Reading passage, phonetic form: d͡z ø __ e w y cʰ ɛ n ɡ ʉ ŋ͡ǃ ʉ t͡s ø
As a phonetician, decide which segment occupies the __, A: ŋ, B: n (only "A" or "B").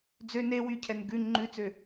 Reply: B